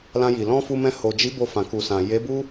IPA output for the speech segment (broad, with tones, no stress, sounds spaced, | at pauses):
l ã˧ j i˨ l ɔ̃˧ f u˧ m ɛ̃˧ h o˨ d͡ʒ i˨˦ b o˧ f ã˨ k u˨ s ã˨ j e˨˦ b u˦